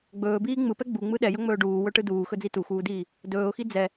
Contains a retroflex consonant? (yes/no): yes